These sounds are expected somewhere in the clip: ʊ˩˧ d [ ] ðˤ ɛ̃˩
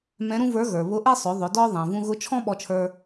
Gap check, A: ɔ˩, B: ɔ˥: B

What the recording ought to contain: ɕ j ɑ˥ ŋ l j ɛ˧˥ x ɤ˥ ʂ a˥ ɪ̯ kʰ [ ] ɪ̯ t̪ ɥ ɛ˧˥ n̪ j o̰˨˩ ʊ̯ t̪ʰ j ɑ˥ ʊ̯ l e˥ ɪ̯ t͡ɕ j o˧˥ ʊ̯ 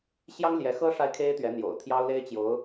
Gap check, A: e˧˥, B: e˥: B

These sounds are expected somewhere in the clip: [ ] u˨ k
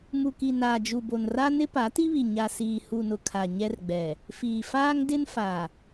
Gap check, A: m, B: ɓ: A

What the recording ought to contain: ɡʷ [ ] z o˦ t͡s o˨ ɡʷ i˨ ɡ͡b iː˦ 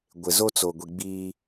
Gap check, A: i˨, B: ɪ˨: B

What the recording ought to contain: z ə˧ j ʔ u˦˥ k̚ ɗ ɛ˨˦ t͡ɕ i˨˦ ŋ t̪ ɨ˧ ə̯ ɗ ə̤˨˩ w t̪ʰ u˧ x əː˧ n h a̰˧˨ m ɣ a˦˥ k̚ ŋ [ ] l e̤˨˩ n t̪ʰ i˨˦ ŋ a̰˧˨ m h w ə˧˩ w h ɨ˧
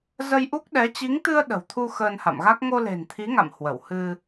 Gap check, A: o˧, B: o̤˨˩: A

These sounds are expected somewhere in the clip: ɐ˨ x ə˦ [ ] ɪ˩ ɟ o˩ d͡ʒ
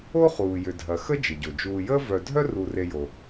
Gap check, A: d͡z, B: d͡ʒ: B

